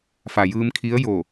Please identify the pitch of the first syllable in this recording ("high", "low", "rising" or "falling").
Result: low